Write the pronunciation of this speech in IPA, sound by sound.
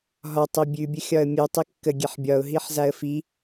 ɦ ɒ tˤ i bʲ ʉ bʲ ə xʲ ɒ ə̯ mʲ ʉ tˤ i kː ə ɡʲ e ħ bʲ ɒ ʊ̯ ɦ i ħ z a ə̯ f i

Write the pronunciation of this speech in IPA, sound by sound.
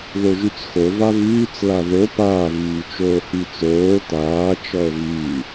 ð o ʒ y t͡s x o v a v yː t͡s l a ð o p aː v yː t͡ʃ oː h y t͡s oː t aː t͡ʃ ɔ ə̯ v yː

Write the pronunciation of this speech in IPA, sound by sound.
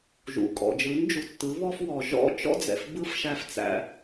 ʒ ṵ˨ kʼ ɔ̰˨ d͡ʒ ɯ˨˦ n d͡ʒ u˨ tː ɯ˨˦ β ɔ˦ f w ɔ˨ ʒ ɔ̰˦ t͡ʃ ɔ̰˦ d͡z ɛ̰˨ f b ɯ˦ f ʃ æ˧ f t͡s æ̰˧

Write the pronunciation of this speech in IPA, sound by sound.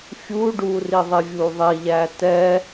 fʲ u ɖ u r i ðˤ i vʲ u ðˤ i ʎ æ t ɛ

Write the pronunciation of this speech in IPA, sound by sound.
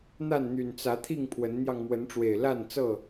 n̪ a˥˨ n n̪ y˨˩ n t͡s ä˨˦ t̪ʰ i˥˨ ŋ pʰ w ə˨˦ n n̪ j ɑ˧ ŋ m w ə˨˦ n ʈ͡ʂ w e˨˩ ɪ̯ l a˥˨ n t͡s ɤ˥˨

